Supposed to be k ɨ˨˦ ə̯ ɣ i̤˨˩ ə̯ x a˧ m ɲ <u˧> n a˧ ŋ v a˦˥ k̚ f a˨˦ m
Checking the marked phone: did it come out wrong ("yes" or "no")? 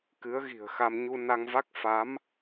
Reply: no